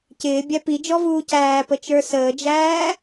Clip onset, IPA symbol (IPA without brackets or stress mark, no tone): c